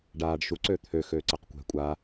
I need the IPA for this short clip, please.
ɖaːɖ ʃu ǀøt̪ʰø xøːǀəːqkʷɛ̤ kʷʼa

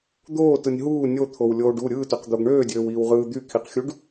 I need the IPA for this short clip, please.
d̪oːtɯnʲ ɦuː nʲot̪ʰowlʲoːɖ u ɾʲɯːtøqd̪oɡ ɳøːdʲøːwiːwʁɯː d̪ykʰiqxʲuɖ

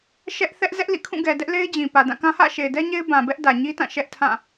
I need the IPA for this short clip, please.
ʃɛ˦ʔ θɛ˦ʔ zɛ˦ʔlḭ˦˨kʰũ˦˨ɡɛ˨ dɛ˦ʔle˦ɪ̯d͡ʑĩ˨ pä˨dã˦˨kã˦ hä̰˦˨ʃe˨ɪ̯dɛ˦ ɲe˦ɪ̯bã˨bɛ˦ʔ dä˨ɲi˦tã˦˨ ʃɛ˦ʔtʰã˦˨

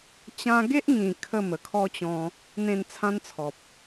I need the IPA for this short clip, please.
t͡ɕã˦ ɡe˦ʔŋĩ˨˩ kʰə˥˧mə˨˩kʰɔ˦t͡ɕɔ̃˧ | n̪ẽ˥˧n t͡sʰã˦nt͡sʰɔ˨p̚

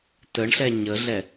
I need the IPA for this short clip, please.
təɳɬɛ ɲəɮɛ

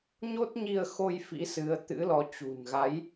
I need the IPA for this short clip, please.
ɲo˦˥t̚ɲi˧ə̯xo˧j fḭ˧˥sɨ˨˦ə̯t̪ɨ̰˧˥lɔ˨˦ t͡ɕṳ˨˩nɣa˨˦j

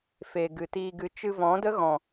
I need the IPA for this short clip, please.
fe˨ ɡɨ˨tiː˧ɡɨ˧ t͡ʃɨ˧vɔ̃˨˦də˦ ɣɔ̃˨

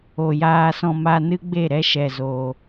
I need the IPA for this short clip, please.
o˨jaː˧sɔ̃˧ma˧ nɨ˦ɡ͡be˦˨ ɾɛ˦ʃɛ˨zoː˨

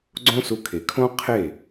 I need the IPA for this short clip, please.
ɡ͡ǀõ˦su˧kʰe˨ kʰõ˦ qʰe˦˨

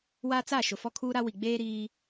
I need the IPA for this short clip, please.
wa˦t͡sa˦˨ ʃʊ˨fɔ˦kʰuː˦ɾa˦ wi˨ɡ͡beː˦ɾiː˦

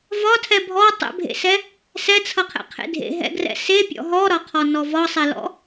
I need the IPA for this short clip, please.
vɒtʰɛ bʱɔ tˤɛ̰bʱḛsɛ | sɛt͡sʰʌqʰɛ̰qʰḛ dʱḛɦɛ̰ɡrɛ̰ sepʲɔ̰ ɦɔɾɒqʰɔnɔ vɒsˤɛlɔ̰

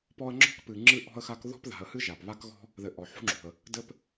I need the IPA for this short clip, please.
pɔ˦ə̯ŋ͡ǁɔ̤˥kpɨ˨ ŋ͡ǁɨ˦ʔɔ̤˦ə̯xa˦k ðɔ̤˦pða̤˨ə̯hɨ˦ ʒa˩pβa˥kɣɔ̤˥ | ðɘ˨ʔɔ˩ ħṳ˥ŋ͡ǁṳ˩ə̯ | dɘ˥p

